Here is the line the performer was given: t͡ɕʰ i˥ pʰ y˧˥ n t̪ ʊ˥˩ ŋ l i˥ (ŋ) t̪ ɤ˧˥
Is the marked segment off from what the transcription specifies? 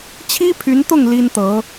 yes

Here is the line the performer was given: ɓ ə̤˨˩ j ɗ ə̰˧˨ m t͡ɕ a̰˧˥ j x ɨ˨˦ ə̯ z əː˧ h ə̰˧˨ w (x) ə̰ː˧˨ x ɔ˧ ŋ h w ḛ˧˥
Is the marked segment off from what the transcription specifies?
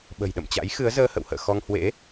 yes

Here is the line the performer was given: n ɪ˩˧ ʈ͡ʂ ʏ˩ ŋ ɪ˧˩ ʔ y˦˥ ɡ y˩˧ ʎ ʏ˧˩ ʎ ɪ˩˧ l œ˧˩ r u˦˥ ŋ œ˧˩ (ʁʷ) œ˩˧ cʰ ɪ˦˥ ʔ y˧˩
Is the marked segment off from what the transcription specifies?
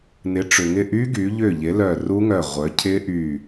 no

